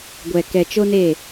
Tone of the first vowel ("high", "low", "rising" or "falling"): low